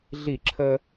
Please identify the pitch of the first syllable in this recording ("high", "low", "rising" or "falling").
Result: falling